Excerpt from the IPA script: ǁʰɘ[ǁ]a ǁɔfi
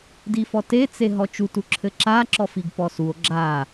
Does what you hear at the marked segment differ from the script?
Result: no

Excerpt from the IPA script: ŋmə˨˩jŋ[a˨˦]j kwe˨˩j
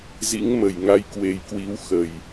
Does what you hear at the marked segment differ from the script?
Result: yes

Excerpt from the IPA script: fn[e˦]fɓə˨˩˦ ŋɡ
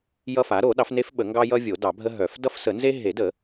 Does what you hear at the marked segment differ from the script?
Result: no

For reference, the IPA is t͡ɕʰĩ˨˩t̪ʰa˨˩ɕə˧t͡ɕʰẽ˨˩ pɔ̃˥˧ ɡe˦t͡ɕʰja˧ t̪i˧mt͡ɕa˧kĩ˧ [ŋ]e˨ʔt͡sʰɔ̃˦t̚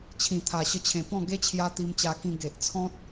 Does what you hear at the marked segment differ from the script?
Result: yes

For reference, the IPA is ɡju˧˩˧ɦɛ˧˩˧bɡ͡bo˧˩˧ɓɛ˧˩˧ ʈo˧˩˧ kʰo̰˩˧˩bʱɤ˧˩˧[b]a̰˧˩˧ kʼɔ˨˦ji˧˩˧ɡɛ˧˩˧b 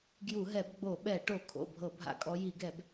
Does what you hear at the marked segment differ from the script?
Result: yes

